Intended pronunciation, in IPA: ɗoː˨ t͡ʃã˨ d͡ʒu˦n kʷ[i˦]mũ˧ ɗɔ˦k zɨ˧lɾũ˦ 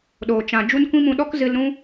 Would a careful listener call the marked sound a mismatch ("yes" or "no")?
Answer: yes